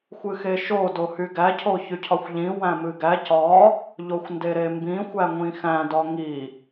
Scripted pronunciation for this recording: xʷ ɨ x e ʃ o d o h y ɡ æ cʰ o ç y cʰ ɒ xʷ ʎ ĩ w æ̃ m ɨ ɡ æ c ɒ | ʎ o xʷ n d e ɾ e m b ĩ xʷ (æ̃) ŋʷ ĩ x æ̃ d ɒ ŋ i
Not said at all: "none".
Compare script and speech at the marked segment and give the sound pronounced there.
æ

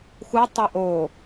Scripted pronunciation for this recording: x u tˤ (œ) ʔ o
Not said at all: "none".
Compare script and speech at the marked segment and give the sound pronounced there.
ɛ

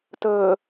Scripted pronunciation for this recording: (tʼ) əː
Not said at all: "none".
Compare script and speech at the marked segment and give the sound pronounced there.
t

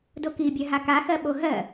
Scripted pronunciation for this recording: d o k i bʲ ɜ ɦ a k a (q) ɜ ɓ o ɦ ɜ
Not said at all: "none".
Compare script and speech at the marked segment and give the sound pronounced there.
x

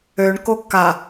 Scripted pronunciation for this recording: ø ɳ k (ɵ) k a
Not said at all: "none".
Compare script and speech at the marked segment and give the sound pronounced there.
o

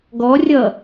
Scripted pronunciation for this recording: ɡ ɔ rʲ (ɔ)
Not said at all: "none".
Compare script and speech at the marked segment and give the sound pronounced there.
ʌ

